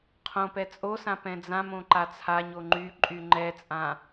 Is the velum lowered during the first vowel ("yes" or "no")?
yes